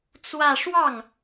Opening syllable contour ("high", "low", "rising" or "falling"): falling